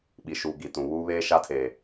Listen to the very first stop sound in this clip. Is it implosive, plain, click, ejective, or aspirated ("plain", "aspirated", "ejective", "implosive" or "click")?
implosive